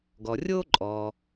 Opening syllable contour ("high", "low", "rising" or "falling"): low